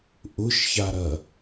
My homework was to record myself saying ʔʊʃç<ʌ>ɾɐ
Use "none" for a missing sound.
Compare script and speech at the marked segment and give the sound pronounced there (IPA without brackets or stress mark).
a